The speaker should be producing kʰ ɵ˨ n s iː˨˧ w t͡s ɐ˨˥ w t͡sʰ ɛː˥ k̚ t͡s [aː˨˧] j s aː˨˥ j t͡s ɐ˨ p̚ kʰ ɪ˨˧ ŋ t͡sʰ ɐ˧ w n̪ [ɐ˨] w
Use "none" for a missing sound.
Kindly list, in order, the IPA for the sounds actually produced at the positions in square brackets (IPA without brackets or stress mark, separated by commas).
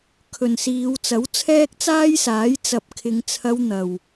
aː˥, ɐ˨